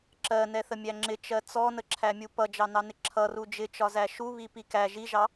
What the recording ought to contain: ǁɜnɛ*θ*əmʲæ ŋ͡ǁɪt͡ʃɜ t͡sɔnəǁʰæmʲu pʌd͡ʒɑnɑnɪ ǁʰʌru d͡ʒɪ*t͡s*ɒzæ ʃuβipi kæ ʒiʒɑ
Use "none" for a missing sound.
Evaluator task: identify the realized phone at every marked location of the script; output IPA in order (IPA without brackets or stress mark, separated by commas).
θ, t͡ʃ